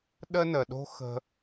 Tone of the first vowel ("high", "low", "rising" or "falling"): high